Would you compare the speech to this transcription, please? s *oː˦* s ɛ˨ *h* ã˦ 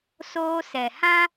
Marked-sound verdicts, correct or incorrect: correct, correct

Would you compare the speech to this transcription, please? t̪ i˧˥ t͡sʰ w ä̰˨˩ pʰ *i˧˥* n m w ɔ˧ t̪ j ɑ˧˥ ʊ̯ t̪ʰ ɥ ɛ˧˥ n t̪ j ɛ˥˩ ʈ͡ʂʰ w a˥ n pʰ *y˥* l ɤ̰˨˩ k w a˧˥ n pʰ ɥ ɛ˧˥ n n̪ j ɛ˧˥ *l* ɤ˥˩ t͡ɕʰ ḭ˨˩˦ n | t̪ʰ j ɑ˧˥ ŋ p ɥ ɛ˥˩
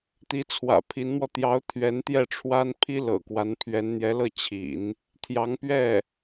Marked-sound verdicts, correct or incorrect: correct, incorrect: i˥, correct

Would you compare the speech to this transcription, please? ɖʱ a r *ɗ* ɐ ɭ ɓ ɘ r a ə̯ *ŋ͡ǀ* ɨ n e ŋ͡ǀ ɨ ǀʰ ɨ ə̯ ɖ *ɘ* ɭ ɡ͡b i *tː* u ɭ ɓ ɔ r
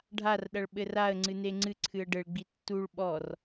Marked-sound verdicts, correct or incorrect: correct, correct, correct, correct

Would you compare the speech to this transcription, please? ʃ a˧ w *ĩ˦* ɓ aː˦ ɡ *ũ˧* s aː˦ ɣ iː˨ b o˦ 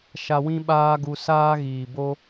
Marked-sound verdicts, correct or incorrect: correct, incorrect: u˧

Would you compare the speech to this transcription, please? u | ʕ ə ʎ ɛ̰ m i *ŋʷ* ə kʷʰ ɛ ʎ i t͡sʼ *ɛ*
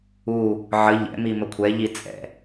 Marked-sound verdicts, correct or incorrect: incorrect: m, incorrect: ɛ̰

